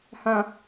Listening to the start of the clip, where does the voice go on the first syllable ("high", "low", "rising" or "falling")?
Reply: low